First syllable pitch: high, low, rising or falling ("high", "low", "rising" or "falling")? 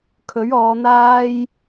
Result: rising